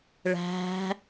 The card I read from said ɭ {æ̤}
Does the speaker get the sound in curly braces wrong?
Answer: no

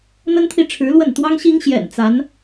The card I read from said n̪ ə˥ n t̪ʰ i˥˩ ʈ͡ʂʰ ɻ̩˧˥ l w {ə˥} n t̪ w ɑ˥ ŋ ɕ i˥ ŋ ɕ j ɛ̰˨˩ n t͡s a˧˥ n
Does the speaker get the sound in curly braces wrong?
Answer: yes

